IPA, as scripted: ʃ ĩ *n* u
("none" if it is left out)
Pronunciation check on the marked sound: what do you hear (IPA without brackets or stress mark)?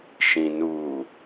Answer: n